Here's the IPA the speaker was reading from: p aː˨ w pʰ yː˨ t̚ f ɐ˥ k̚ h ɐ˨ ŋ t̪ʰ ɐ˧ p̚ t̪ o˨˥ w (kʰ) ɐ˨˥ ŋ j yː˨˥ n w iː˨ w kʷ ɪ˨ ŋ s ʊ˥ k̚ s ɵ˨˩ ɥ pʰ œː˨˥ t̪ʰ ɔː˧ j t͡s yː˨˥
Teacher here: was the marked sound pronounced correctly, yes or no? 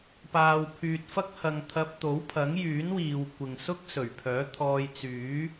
no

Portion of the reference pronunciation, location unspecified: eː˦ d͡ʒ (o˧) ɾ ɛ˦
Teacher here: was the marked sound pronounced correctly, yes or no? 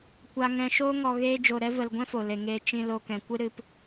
yes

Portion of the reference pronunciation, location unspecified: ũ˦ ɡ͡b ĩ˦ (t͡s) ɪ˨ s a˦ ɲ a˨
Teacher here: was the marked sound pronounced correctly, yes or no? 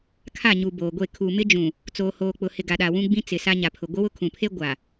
yes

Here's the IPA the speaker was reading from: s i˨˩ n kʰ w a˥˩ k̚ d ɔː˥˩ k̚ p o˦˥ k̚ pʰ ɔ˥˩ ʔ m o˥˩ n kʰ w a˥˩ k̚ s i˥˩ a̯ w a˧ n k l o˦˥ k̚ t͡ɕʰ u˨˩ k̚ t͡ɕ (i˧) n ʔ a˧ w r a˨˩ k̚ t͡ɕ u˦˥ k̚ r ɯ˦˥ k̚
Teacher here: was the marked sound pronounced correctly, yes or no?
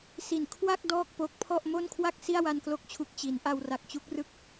no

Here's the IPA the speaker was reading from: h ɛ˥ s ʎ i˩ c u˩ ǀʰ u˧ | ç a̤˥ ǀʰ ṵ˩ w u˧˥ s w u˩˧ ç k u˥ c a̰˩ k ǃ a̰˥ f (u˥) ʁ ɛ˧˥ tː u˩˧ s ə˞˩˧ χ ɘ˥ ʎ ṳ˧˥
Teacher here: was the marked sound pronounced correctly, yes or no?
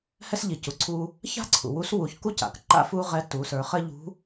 yes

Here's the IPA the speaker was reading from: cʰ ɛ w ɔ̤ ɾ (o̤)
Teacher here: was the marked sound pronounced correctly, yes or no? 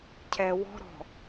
no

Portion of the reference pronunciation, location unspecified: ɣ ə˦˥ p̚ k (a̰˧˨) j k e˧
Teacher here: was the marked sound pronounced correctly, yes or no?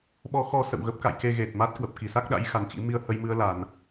yes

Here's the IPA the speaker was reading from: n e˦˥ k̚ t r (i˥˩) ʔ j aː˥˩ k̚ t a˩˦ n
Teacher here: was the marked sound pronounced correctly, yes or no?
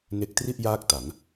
yes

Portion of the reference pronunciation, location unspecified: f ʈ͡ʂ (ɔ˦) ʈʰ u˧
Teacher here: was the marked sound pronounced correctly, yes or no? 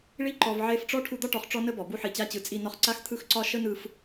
yes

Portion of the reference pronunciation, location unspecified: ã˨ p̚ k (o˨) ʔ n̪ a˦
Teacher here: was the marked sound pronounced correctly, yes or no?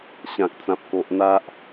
yes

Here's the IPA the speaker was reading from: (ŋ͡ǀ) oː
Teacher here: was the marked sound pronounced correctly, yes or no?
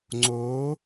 yes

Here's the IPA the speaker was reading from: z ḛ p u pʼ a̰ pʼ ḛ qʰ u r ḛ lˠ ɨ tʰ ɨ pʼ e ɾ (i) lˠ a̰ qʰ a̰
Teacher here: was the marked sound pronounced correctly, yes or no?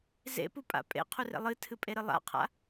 no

